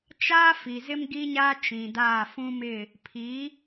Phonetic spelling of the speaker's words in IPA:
t͡ʃ aː˦ f i˨ z ɪ˦ m ɡ i˦ ɲ a˦ t͡ʃ ĩ˨ d aː˦˨ f ũ˦ m ɪ˦˨ | pʰ i˨˦

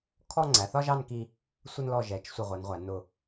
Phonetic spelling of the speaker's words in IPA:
kʰ ɔ˥˧ ŋ͡ǀ æ˩˧ θ ɒ˧ ʒ ɑ˥˧ n k i˧ | sʷ ə˧ n l ɔ˧˩ ʒ ɛ˩˧ t͡ʃ sʷ ə˧˩ ʁʷ ɜ˩˧ n ʁʷ æ˩˧ n ʊ˧˩

